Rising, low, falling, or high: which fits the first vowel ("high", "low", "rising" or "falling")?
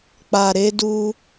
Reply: low